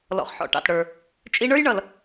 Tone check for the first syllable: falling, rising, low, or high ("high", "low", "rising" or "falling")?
low